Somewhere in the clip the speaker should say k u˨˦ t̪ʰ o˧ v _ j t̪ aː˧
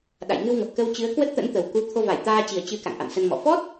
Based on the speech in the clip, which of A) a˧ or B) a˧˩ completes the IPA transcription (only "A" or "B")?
B